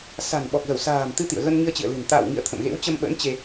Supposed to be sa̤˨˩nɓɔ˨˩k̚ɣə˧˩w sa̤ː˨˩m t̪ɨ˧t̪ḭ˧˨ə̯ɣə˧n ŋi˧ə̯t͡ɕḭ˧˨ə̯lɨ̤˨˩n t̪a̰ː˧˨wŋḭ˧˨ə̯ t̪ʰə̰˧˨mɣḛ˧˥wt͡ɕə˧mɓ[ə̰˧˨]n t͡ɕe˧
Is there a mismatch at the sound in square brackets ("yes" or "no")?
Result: yes